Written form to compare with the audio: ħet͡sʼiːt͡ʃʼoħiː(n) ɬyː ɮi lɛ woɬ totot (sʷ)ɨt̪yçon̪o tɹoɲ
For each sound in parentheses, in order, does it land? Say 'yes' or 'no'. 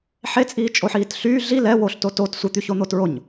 no, yes

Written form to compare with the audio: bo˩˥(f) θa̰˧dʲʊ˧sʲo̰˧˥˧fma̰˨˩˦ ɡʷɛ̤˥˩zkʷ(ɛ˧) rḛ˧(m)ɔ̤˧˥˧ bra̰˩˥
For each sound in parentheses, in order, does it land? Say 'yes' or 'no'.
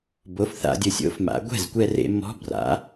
yes, yes, yes

